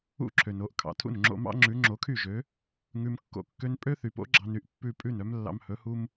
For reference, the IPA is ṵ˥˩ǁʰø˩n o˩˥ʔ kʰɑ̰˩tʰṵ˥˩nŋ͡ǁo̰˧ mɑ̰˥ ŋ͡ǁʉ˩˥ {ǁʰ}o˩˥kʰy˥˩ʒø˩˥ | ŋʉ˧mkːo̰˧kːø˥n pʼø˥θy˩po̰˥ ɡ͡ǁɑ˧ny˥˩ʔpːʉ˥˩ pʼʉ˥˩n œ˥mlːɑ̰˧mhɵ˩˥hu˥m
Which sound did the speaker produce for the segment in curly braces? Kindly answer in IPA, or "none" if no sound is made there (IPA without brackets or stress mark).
ŋ͡ǁ